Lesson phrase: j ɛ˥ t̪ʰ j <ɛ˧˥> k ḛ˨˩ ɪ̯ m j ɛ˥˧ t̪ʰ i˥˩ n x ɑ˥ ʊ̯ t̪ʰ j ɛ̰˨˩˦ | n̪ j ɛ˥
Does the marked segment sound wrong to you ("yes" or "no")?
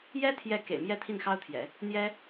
yes